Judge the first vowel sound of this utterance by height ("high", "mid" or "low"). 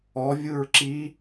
mid